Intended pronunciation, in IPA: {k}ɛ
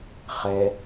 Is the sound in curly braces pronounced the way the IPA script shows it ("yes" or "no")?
no